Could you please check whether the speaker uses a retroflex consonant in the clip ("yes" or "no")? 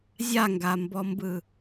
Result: no